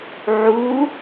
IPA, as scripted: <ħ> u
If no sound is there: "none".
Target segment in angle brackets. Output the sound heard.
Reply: ʕ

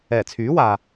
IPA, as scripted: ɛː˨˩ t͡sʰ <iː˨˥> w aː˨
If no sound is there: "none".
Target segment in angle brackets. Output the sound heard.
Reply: yː˨˥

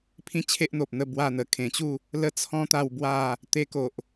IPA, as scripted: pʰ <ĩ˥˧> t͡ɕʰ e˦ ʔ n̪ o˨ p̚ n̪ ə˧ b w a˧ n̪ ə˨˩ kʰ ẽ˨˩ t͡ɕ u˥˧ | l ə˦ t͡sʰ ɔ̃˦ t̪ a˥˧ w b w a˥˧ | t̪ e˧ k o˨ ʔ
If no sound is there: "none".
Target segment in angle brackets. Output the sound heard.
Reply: ĩ˥˧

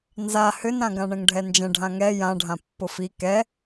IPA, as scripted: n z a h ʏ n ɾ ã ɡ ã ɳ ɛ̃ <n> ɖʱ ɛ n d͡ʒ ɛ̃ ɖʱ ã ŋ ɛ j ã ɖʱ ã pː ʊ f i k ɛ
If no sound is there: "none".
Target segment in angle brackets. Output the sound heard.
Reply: ŋ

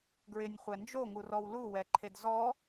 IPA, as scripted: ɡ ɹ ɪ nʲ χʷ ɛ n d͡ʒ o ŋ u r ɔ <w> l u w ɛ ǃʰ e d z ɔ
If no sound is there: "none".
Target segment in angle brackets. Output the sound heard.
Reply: w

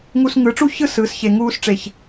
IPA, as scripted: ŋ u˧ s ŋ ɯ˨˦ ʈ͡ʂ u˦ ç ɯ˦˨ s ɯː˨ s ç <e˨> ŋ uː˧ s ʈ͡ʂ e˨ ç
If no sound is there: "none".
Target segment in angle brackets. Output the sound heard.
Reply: e˨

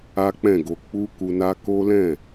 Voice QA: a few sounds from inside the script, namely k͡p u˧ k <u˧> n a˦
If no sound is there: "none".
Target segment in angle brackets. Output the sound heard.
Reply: u˧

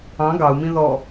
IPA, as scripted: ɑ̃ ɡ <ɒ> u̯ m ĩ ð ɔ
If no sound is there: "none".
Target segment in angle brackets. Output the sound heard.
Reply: ɑ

